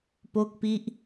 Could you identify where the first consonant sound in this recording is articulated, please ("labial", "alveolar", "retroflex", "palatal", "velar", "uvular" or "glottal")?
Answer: labial